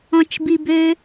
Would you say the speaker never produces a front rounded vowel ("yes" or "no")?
no